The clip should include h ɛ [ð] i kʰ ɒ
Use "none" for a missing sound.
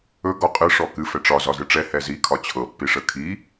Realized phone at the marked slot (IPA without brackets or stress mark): z